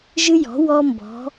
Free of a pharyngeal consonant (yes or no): yes